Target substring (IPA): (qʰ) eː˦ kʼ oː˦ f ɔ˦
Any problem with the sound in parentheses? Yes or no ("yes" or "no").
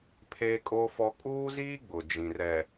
yes